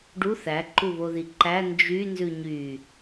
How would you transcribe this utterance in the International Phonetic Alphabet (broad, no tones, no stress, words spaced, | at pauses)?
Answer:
ɖu θæ ǃuβoðiǃæ nd͡ʒy nzʉɲy